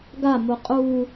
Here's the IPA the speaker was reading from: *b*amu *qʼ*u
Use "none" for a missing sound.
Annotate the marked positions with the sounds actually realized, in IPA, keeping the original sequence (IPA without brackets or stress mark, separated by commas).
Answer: ɡ, qʼ